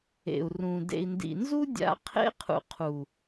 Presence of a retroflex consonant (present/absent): absent